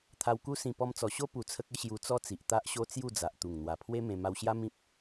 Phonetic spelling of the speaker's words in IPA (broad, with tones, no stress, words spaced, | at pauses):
t̪ʰa˧wku˦sĩ˧ pɔ˧mt͡sɔ˨˩ɕo˦ pu˧t͡sʰə˦k̚ə˦ ɕju˧t͡sɔ˦t͡si˨ʔ t̪a˦ʔɕo˦ t͡sju˥˧d͡za˨ʔt̪u˨˩ŋ n̪wa˨˩pʰwe˦ mẽ˧ ma˧wɕja˦ mĩ˦p̚